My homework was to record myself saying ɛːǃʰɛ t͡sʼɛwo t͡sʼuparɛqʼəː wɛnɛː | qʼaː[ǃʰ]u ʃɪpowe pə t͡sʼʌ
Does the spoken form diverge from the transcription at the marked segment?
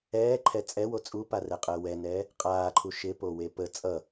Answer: no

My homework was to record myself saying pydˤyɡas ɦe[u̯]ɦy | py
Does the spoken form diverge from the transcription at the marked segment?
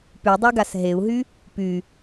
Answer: no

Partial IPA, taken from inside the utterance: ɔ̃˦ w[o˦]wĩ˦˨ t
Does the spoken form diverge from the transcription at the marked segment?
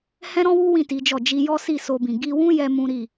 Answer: yes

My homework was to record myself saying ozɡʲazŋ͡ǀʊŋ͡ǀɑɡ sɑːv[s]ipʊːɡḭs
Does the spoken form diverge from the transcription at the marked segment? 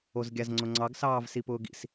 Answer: no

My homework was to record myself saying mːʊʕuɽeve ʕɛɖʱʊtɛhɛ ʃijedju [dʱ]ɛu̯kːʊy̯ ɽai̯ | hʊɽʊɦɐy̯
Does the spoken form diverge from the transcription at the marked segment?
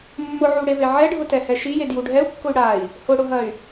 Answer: yes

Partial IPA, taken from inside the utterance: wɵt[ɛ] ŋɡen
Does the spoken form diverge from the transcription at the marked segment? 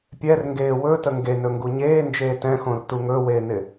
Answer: yes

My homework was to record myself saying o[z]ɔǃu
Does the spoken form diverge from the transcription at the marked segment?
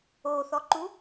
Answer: yes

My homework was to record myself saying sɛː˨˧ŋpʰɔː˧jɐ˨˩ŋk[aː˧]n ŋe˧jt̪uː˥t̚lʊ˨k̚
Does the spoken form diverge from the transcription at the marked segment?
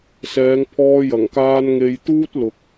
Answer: no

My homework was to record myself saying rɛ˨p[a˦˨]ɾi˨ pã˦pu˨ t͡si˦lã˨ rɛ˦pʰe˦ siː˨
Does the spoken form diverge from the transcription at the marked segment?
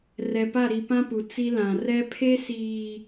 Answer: no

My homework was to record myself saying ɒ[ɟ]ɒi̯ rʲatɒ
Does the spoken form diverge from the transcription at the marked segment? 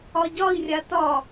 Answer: no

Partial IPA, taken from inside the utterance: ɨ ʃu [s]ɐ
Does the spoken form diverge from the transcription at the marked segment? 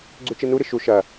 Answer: yes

